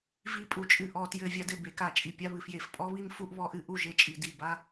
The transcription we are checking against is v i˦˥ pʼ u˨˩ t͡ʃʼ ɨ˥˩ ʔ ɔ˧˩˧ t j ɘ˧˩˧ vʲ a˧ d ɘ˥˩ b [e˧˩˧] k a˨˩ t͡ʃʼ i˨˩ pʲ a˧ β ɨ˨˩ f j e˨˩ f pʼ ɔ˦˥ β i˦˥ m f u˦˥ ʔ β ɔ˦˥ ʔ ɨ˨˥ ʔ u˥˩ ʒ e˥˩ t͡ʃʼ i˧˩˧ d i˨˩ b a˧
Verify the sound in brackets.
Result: correct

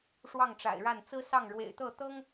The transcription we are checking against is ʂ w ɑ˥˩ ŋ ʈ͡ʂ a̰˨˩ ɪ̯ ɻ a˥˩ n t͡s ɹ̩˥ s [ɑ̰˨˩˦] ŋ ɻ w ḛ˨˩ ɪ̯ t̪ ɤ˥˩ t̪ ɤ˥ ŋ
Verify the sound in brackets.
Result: incorrect: ɑ˥˩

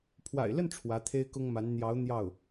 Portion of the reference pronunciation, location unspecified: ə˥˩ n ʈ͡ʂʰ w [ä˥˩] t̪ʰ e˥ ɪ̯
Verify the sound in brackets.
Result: incorrect: ä˧˥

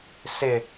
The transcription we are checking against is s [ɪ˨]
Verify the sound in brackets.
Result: correct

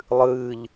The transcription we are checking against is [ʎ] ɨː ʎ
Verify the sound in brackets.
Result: incorrect: lˠ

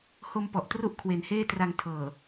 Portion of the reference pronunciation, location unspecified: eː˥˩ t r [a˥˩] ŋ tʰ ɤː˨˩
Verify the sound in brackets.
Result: incorrect: a˧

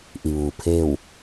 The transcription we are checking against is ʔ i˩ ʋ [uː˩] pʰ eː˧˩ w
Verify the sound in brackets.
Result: correct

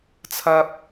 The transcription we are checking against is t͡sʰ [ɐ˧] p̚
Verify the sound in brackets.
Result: correct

